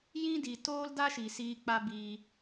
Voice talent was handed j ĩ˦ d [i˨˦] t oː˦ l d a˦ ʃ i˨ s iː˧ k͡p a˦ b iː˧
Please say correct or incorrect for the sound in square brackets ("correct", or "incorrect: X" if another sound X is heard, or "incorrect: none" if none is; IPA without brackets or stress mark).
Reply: incorrect: i˨